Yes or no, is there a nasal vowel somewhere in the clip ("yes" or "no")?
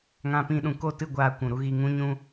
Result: yes